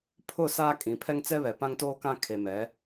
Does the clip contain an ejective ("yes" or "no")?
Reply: yes